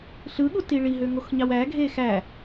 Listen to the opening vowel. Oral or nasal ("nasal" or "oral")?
oral